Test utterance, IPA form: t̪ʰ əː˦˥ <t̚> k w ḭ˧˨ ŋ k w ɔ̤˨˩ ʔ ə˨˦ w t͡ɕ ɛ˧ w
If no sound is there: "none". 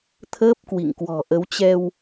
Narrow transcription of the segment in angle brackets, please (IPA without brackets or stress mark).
p̚